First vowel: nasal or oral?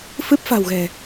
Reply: oral